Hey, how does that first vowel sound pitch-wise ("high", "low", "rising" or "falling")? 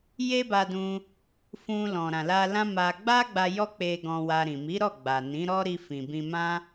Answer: high